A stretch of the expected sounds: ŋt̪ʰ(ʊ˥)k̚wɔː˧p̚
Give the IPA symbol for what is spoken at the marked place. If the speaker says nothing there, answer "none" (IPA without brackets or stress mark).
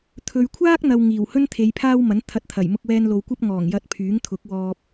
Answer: ʊ˨˥